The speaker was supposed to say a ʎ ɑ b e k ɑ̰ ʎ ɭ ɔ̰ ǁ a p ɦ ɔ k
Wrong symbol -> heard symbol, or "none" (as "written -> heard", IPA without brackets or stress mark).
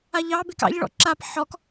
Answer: ɦ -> ħ